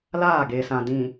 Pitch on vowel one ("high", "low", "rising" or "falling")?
falling